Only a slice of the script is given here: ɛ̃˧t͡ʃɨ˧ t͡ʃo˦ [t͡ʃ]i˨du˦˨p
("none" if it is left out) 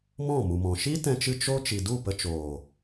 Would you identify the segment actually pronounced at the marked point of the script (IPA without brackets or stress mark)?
t͡ʃ